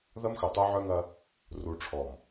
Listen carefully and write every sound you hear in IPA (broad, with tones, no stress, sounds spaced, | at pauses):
ð ɐ˦ m x œ˨ tˤ o˦ ʕ œ˦ ŋ ɐ˦ | r u˨ ʈ͡ʂʰ ɔ˨ m